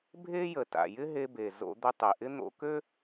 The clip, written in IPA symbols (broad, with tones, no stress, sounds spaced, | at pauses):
bʱ e˥ j ə˩ t a̰˩ j ɪ˥ ɦ e˧ b e˩ z o̰˧ d̪ ɵ˧ tˤ e˩ ʔ ɪ˥ n̪ o̰˧ k ø˥